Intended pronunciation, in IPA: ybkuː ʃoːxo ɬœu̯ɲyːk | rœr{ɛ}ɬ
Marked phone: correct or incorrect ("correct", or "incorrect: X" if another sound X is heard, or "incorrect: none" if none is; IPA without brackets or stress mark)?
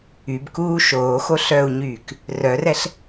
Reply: correct